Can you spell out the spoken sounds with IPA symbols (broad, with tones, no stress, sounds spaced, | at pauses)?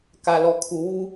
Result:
k a˨ l ɔ˨ kʰ u˨ w u˦